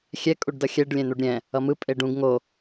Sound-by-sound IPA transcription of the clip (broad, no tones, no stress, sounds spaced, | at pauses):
xʲ ɛ kʼ u ɖ d ʌ xʲ ɛ ɖ lʲ ɛ̃ n̪ u ɖ ɾʲ ɛ̃ | ʌ m ɯ pʼ e ɖ ũ ɡ ŋ o